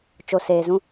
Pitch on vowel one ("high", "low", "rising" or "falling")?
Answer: low